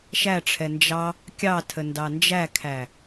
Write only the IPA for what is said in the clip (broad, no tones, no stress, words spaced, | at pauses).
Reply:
ʃæʈ͡ʂʰɛ nd͡ʒɑ | kʲɑtʰəndɑ nd͡ʒækʰæ